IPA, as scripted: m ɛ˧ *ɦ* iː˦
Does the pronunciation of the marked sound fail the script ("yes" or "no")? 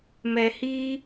yes